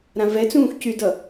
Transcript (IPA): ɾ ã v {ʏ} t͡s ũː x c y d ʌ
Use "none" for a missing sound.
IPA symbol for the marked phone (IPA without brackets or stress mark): ɛ